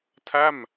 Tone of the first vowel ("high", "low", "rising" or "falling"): falling